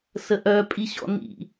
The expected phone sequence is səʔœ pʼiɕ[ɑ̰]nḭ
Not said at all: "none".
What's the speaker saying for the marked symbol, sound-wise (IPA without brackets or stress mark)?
ɔ̰